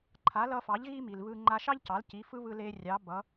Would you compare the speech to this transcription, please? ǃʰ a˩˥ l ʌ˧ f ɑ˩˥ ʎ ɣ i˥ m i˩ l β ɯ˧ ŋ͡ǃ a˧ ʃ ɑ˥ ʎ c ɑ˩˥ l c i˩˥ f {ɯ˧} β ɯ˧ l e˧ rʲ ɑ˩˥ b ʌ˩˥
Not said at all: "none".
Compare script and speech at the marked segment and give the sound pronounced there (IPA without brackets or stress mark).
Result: ɯ˥